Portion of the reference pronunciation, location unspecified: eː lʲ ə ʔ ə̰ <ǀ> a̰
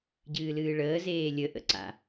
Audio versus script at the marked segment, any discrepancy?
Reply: no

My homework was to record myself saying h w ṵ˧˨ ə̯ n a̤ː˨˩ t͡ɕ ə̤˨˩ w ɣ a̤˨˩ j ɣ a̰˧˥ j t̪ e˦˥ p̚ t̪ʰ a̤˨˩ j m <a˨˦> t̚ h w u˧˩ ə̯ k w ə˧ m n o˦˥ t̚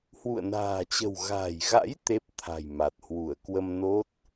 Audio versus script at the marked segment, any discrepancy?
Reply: yes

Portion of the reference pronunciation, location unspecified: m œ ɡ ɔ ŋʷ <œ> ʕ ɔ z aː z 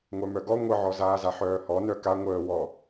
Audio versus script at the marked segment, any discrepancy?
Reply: yes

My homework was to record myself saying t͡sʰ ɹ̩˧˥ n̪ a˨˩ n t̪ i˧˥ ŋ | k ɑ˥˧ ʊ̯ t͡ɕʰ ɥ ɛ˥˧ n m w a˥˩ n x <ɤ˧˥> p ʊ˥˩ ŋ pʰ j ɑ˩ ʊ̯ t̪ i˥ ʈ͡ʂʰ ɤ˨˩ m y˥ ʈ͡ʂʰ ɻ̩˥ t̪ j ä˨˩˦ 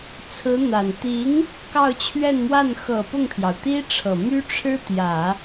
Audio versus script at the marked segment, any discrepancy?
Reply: yes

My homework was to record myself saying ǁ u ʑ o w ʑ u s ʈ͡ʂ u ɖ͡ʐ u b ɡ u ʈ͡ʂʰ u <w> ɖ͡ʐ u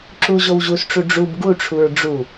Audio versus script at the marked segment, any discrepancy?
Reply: yes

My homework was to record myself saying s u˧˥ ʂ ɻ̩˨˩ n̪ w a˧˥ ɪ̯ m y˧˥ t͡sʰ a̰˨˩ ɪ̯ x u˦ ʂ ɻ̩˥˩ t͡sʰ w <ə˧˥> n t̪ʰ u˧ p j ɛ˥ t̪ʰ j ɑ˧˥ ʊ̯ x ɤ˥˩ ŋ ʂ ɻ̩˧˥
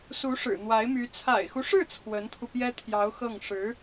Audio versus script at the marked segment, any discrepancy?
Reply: no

